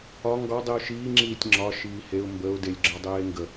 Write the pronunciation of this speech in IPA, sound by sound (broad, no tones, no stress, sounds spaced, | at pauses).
ɒ ŋ ɡ ɒ dˤ i ʊ̯ ʃ iː ŋ͡ǁ iː tʲ ŋ͡ǁ ɒ ʃ iː h e ʊ̯ m b ə ʊ̯ d e lʲ ɡ͡ǁ ɒ dˤ eː ŋ ɡ ə